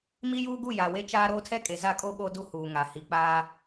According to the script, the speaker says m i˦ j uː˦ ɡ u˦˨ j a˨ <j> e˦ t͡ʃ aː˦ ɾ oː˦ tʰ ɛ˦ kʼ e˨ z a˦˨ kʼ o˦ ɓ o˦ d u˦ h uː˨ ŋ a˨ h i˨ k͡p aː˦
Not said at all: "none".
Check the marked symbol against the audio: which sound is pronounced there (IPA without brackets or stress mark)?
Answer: w